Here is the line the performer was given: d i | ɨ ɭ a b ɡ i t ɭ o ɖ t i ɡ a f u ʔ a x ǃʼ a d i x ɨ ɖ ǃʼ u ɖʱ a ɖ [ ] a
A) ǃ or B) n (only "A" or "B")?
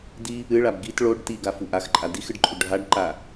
A